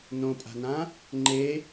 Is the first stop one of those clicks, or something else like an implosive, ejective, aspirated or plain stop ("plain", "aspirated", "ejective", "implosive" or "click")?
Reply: ejective